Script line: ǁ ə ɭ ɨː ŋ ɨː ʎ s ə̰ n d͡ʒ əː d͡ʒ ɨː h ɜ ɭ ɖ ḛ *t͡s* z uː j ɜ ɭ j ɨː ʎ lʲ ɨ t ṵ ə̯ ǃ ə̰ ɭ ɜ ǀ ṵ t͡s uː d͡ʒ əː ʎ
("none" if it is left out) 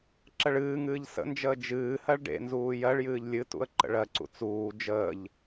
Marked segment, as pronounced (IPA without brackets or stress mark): n